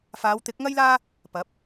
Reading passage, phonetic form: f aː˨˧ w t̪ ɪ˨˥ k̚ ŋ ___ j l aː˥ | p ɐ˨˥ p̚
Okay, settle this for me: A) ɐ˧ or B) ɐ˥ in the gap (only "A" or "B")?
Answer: B